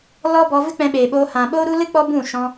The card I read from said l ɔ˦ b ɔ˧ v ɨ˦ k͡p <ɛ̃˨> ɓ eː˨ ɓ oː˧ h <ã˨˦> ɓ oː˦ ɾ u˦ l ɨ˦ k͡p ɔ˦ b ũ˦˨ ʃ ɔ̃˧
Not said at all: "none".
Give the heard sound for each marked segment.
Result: ɛ̃˧, ã˨

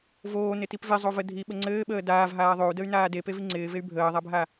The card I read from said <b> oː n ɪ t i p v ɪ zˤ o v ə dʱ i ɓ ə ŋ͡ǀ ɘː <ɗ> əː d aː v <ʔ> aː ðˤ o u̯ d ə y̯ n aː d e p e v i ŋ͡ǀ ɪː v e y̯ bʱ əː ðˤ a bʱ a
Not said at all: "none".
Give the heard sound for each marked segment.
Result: v, ɓ, ɦ

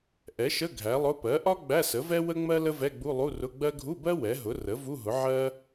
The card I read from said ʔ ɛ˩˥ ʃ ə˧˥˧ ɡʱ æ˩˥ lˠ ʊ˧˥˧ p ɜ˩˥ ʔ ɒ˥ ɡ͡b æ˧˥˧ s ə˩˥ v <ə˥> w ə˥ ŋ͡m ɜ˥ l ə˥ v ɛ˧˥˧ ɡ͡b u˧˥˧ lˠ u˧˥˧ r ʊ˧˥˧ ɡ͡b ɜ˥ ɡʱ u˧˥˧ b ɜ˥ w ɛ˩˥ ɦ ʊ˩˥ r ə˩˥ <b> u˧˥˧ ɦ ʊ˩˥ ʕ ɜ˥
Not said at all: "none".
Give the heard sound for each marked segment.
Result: ɛ˥, v

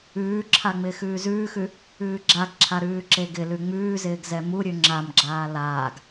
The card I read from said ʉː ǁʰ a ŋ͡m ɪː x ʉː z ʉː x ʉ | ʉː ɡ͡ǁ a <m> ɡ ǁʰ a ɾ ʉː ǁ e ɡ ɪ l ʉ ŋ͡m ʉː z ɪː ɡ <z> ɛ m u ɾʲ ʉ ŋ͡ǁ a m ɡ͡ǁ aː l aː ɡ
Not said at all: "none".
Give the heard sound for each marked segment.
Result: none, z

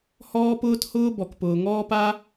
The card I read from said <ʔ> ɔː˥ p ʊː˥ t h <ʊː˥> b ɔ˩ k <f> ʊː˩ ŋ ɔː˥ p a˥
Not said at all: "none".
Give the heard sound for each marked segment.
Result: h, ʊː˥, p

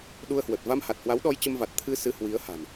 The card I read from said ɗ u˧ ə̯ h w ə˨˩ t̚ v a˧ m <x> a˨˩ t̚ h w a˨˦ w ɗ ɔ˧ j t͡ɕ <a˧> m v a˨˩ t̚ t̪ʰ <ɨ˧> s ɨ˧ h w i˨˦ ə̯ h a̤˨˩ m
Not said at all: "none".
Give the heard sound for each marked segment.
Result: h, ə˧, ɨ˧

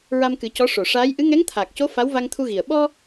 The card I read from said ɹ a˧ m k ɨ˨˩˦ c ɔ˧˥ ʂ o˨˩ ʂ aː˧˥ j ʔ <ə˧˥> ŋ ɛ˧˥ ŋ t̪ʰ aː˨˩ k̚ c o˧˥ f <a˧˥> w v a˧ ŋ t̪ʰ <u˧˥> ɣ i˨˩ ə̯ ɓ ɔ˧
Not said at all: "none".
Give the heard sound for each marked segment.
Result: ɨ˧˥, a˧˥, u˧

